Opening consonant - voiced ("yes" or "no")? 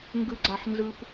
yes